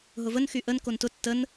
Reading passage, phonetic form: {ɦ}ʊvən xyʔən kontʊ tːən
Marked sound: correct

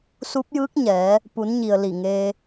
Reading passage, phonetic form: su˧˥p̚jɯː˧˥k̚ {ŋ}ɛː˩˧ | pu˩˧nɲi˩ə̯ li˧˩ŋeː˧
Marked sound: incorrect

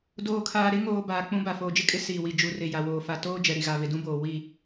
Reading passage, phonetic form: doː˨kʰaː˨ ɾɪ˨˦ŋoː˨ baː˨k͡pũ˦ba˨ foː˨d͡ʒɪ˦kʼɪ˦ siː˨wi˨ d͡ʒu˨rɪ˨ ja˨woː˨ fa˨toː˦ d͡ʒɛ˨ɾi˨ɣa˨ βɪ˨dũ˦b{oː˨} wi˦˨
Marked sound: correct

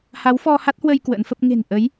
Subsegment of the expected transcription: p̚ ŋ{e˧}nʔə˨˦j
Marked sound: incorrect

